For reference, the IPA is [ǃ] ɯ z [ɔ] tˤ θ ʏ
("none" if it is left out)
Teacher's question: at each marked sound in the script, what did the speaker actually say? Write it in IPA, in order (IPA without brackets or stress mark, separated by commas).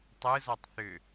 tˤ, ɔ